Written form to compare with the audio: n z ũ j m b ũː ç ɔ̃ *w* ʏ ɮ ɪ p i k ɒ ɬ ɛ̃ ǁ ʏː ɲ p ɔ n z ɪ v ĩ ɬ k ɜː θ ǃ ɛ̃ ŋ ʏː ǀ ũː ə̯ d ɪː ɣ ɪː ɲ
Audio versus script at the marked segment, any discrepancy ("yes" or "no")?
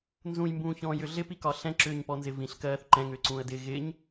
yes